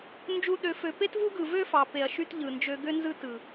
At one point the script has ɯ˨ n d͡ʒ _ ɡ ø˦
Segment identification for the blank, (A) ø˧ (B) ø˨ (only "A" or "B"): A